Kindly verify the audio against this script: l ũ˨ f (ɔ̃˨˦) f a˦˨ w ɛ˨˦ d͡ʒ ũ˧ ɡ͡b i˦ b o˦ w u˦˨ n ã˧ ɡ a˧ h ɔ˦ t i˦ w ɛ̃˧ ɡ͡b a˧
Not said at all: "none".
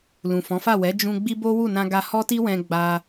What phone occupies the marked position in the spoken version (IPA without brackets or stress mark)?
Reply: ɔ̃˨˦